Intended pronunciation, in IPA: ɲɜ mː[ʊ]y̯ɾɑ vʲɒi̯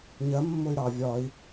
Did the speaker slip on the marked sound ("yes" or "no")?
no